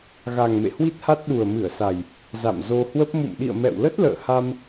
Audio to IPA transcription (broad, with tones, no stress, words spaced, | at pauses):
ɣa˨˩ŋ mḛ˧˨hwi˦˥t̚ha˦˥t̚ ɗu˨˩ə̯mɨ˧˩ə̯ sa˨˩j | za̰˧˨mzo˧hwə˦˥p̚ mṵ˧˨m ɗḭ˧˨ə̯mɛ̰˧˨wlə˦˥t̚ lə̰ː˧˨ha˧m